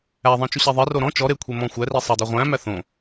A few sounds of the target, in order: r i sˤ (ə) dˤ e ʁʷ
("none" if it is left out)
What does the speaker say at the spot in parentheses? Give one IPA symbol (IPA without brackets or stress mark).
æ